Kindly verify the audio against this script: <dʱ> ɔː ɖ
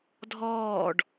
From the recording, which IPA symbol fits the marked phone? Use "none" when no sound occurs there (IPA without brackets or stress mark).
dʱ